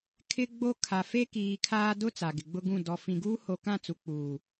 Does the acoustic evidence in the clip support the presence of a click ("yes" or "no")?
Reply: no